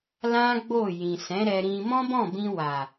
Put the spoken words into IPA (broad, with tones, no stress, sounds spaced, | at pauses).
l ã˦ ɡ͡b o˦˨ j ĩ˨ s ɛ̃˨˦ ɾ ɛ˧ ɾ ĩ˧ m ɔ̃˦ b ɔ̃˦˨ b ĩ˧ w a˨